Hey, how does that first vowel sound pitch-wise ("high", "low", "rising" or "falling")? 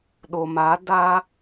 low